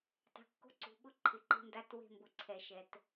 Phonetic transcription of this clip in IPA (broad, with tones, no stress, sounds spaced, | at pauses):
tˤ e̤˨ kː o̤˦ ǀ ṳ˨ ɓ ʊ˦ ǃʰ ɪ˨ ǃ e̤˦ n d a˦ t w e̤˦ m b ʊ˨ ǀʰ ɛ˨ ʃ ɛ˨ t